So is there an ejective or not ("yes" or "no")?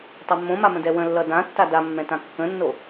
no